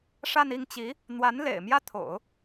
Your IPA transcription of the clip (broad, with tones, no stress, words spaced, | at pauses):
ʂa˥˧ni˥˩ŋt͡ɕi˧˥ | n̪wa˧˥n lḛ˨˩ɪ̯ mjä˥t̪ʰo̰˨˩˦ʊ̯